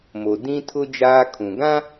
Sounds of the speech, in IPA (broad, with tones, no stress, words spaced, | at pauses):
mo˨ dĩ˦tʰʊ˦ d͡ʒaː˦kʰũ˨ ɡã˦